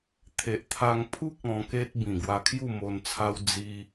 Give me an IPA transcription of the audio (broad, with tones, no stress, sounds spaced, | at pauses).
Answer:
t̪ʰ e˨ ʔ t̪ʰ a˧ ŋ pʰ u˦ k̚ ɔ̃˧ k e˦ t̚ b ĩ˨˩ ɡ w a˧ kʰ j u˥˧ m o˧ n t͡sʰ a˦ w d͡z i˦